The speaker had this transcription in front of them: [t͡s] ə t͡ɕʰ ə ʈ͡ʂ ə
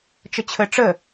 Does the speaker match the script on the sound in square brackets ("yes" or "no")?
no